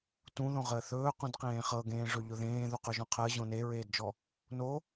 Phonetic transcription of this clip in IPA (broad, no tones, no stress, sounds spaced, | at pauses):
t ũ ð õ ʁ əː θ ɵː q ũ d q ẽː χ ɤ ɡ ẽː ʐ ɵ ʎ ʊ ð ẽː ð u q ɵ ʒ ɔ̃ qʰ əː ʑ õ n e ɹ eː d d͡ʒ ɔ | n o